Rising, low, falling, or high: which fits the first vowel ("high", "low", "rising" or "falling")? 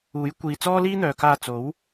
rising